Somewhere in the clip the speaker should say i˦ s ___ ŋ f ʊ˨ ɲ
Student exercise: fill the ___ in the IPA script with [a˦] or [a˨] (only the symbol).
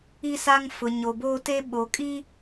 a˦